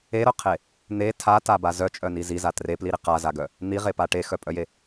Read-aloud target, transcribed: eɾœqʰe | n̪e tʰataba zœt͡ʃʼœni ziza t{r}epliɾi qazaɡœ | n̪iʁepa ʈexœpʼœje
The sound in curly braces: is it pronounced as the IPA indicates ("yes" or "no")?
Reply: yes